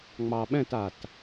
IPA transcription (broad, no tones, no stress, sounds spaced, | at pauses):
ŋ͡m ɑ ɓ ɛ̃ t a t